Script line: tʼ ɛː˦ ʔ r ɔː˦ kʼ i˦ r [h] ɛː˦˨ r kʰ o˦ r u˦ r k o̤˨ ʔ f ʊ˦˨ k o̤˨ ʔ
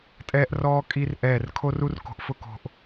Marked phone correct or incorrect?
incorrect